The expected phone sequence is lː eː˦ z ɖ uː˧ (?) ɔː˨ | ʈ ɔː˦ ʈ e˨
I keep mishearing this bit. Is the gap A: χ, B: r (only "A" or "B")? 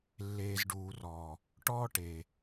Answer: B